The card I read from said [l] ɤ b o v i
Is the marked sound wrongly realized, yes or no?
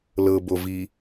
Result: no